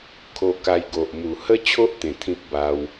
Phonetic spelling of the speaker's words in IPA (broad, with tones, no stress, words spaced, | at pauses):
kʰo˧ka˧jɡo˨ʔ mu˨˩ hə˦t͡ɕʰo˦ʔ t̪ẽ˨˩t̪ʰĩ˦p̚ ba˧w